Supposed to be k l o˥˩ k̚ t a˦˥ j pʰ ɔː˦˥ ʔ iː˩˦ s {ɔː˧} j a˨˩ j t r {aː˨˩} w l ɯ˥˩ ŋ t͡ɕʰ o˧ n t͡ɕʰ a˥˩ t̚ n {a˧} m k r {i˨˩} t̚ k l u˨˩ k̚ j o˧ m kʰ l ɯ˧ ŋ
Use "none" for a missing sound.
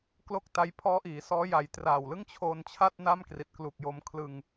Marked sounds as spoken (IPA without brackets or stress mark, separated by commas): ɔː˦˥, a˨˩, a˥˩, i˨˩